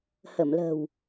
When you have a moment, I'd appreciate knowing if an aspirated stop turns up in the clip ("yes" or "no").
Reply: no